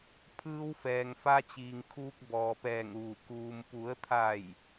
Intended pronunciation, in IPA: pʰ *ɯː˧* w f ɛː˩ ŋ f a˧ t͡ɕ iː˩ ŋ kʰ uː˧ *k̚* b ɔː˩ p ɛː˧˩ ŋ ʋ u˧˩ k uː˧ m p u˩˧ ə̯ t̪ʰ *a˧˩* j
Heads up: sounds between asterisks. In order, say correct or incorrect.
correct, correct, correct

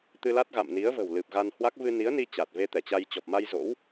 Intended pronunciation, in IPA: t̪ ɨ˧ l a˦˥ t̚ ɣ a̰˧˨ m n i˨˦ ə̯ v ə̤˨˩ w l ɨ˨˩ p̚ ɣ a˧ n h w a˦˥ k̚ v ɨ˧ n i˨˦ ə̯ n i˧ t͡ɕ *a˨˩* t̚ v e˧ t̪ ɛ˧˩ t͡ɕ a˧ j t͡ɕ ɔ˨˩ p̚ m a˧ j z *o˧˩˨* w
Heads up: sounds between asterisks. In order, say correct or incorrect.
correct, incorrect: o̰˧˥

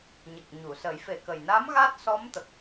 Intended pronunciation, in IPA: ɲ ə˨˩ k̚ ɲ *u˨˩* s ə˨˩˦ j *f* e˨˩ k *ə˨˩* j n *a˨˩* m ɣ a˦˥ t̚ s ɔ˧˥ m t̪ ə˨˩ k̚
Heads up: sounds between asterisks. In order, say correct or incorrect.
incorrect: u˨˩˨, correct, correct, incorrect: a˧˥

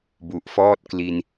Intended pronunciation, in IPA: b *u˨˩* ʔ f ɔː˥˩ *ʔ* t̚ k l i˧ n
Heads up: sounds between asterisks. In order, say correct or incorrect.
correct, incorrect: none

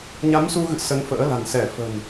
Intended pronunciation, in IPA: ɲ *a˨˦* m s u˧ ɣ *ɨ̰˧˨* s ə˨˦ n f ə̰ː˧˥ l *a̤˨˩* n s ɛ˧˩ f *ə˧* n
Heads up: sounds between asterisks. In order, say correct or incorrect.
correct, correct, correct, incorrect: ə̤˨˩

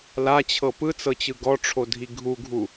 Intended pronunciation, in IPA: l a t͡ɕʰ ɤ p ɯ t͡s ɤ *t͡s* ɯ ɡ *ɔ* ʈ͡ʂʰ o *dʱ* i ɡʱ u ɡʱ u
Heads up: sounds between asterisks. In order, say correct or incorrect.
incorrect: t͡ɕ, correct, correct

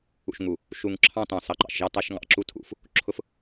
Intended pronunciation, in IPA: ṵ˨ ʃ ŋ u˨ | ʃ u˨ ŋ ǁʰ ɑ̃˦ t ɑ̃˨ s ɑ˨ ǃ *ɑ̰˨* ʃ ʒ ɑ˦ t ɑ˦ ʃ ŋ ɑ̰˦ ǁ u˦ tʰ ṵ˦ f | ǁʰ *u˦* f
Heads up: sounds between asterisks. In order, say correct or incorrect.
correct, incorrect: ʊ˦

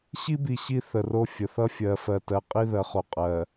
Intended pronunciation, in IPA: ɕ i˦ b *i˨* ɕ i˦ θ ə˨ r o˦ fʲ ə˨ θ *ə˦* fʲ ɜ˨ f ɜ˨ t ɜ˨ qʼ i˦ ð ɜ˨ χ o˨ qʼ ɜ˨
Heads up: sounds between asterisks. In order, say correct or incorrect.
correct, incorrect: ʌ˦

